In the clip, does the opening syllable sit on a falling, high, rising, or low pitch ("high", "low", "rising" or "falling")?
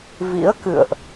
rising